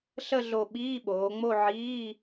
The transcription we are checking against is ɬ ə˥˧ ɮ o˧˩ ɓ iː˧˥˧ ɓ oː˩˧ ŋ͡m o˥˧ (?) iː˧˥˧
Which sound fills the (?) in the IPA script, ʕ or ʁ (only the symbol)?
ʕ